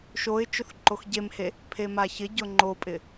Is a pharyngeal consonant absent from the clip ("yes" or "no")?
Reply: yes